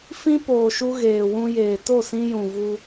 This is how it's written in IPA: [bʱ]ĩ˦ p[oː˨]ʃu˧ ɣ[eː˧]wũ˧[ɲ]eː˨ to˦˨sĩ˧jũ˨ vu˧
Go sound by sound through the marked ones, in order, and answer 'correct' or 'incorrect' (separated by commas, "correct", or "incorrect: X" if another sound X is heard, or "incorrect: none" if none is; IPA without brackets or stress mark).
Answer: incorrect: f, correct, incorrect: eː˨, incorrect: j